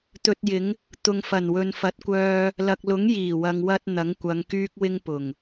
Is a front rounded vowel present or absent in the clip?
present